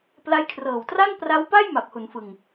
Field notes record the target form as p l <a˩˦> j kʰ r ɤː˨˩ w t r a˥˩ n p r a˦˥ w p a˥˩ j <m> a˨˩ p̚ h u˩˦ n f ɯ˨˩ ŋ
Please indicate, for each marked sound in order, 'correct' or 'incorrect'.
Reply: incorrect: a˦˥, correct

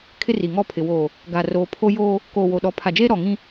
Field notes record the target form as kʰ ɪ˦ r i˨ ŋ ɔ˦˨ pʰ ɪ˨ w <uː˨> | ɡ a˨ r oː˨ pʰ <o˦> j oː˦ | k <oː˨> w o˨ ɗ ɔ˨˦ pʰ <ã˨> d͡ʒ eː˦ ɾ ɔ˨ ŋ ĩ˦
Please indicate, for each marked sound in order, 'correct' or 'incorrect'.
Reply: incorrect: oː˨, correct, correct, incorrect: a˨

